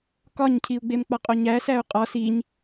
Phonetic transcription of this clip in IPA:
k ɒ ɲ cʰ i u̯ ɡ͡b e m k͡p ɒ qʼ o ɲ æ s æ u̯ qʼ ɒ s i ɲ

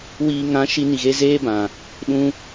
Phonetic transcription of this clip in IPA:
w iː˨ ŋ ã˨˦ ʃ i˧ n i˨ ɣ e˧ z eː˦ b ã˨ | ɗ ũ˧

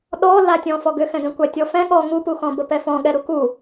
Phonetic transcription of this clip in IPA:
ɗ ɔ l a tʲ ɔ̃ f ɔ ɡ ʏ x ɛ̃ ɡ ɛ̃ kʷ a tʲ ɔ f ɛ̃ ɠ ɔ ŋ u p u x ɔ̃ b ə p ɛ f ɔ̃ ɠ ɛ ɾ u k u

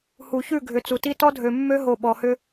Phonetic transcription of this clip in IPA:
h u˨ ç ʉ˦˨ ɡʱ ʏ˨ t͡s u˨ t i˦ t ɔ˦ dʱ ø˨ mː ø˦ ɦ o˨ ɓ ɔ˨ h ʏ˦

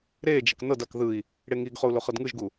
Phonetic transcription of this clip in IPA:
ɾ e d͡ʒ ɛ k n ɤ d a k ð ɯ i̯ | ɽ e ŋ i ɡ χ o u̯ l o χ ɤ d ŋ ɯ ʒ ɡ u

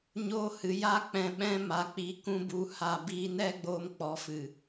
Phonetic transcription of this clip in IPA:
ɲ oː˦ h ɨ˨˦ j a˦ k͡p ɛ̃˧ ɓ ɛ̃˦ m a˨˦ k͡p i˧ k ũ˦ b u˧ h a˧ b iː˦ n ɛ˦ ɡ͡b oː˧ m k͡p ɔ˨˦ f ɨ˨

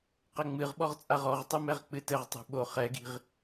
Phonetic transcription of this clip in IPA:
q ɘ ŋ͡m ɨ ʁ ɓ ɔ ʁ t͡sʼ a ʁ ɔ ʁ tˤ ɨ m ɛ ʁ k͡p ɨ t ɘ ʁ tˤ o̤ ɓ o χ ɛ ɡ i̤ ʁ

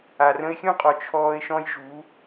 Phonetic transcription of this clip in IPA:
a˨ r ə̃˧ ɪ̯ xʲ ũ˦ qʼ ɔ˨ t͡ʃʰ ɔː˧ ɪ̯ ʃ ɔ̃˦ j ʒ u˨˦

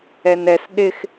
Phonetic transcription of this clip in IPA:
ɛ n ɛ s ɗ ɪ x

